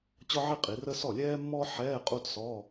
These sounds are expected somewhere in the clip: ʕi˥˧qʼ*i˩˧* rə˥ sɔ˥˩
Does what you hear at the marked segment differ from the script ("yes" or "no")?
no